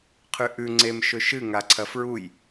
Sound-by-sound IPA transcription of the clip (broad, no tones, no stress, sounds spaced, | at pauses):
qʰ ʉ ʔ ʉ ŋ͡ǀ e m ʃ ɵ ʃ ɨ ŋ a ǀʰ ɐ f ɹ u j